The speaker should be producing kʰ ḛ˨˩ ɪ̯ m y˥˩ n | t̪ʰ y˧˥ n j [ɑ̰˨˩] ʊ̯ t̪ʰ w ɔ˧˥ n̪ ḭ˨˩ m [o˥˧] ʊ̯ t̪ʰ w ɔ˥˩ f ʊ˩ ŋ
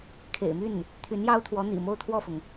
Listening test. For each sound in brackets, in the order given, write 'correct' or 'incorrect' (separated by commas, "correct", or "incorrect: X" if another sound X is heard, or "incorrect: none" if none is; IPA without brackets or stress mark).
incorrect: ɑ˥, correct